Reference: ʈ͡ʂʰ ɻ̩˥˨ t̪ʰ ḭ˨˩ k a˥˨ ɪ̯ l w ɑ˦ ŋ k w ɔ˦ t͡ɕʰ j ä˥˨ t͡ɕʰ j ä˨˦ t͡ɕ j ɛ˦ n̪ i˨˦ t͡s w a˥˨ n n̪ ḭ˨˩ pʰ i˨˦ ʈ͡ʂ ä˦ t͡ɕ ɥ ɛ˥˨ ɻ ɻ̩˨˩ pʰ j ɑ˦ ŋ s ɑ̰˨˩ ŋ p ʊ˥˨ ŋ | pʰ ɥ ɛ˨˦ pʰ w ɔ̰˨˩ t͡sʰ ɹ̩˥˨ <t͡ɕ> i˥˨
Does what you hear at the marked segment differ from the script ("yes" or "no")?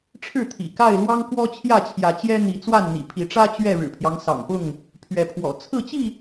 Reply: no